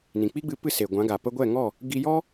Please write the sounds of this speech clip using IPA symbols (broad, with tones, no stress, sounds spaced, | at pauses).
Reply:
n ĩ˨ k͡p i˦ ɡ͡b ɨ˧ p ɨ˦˨ s e˨ ɡʷ ã˨˦ ɡ a˨ p ə˧ ɡʷ ɛ˦˨ ŋ ɔ˦˨ | ɡ i˧ j ɔ˦